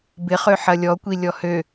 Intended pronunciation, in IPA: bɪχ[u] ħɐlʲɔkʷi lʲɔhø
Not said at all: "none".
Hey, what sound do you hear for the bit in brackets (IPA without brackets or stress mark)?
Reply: ø